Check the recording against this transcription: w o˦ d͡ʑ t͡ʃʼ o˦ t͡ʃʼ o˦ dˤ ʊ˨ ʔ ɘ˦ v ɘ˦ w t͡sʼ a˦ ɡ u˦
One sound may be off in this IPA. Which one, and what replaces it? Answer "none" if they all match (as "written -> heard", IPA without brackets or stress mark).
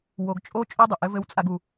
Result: d͡ʑ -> ɡ